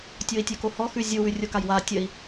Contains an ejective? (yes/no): no